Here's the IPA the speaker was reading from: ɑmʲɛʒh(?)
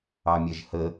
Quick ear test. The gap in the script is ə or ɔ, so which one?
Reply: ə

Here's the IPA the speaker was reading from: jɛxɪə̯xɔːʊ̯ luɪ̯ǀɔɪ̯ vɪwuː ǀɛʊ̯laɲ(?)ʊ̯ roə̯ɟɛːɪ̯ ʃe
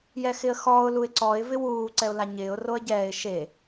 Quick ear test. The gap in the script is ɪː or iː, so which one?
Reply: ɪː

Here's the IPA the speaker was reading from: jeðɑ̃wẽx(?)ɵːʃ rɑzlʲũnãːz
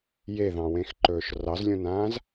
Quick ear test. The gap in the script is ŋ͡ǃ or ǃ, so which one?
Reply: ǃ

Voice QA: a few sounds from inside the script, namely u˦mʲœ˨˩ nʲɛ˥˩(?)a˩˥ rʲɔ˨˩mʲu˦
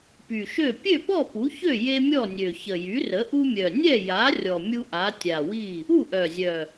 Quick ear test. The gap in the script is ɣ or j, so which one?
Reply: j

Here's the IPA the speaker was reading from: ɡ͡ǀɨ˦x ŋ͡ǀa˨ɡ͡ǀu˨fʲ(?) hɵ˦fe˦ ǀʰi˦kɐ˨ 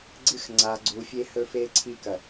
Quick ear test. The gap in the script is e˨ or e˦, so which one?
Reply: e˦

